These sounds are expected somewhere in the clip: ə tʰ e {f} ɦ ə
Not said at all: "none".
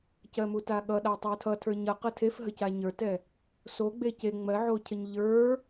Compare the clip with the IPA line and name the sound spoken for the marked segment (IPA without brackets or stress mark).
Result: f